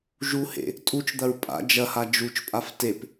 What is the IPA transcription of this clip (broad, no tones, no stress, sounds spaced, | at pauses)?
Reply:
ʒ u h ḛ | tʼ u t͡ʃ d̪ ɐ ɹ pʼ a̰ d͡ʒ ɐ h a d͡ʒ u t͡ʃ pʼ a f t e p